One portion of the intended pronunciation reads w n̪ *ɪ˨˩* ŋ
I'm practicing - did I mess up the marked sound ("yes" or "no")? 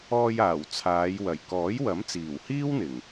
no